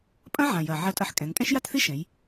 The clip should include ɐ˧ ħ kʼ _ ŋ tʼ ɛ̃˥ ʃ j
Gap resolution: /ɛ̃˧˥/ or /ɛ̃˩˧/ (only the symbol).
ɛ̃˩˧